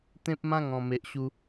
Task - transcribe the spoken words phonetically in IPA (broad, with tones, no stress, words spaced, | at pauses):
t̪ẽ˦p̚mã˦ŋɔ̃˨˩ me˨ʔɕu˧